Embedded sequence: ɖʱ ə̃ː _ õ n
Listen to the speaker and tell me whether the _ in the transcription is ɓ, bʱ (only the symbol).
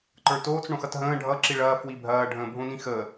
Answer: bʱ